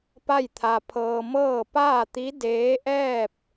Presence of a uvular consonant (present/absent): absent